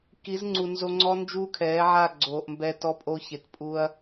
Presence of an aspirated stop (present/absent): present